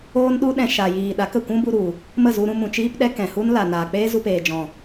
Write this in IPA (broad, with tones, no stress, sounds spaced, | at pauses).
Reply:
oː˦ n ɗ u˦ ɗ ɛ̃˧ ʃ a˨ j iː˨ ɗ a˨˦ k ə˦˨ kʷ ũ˦ b u˧ ɾ u˨ | m ə˦˨ z u˧ ɾ ũ˧ m ũ˨ t͡ʃ iː˧ p ɗ ɛ˧ k ɛ̃˨ h u˦ n l a˨ n aː˨ k͡p eː˦ z u˧ p eː˨ d͡ʒ ɔ̃˨